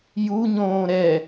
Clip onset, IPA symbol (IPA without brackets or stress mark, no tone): j